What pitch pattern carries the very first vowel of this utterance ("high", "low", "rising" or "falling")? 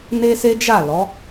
high